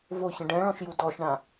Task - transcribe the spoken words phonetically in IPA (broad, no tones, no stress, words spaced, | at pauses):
voçə̃ ɖɛ̃ɭɔ̃ʃju dɔʃɳã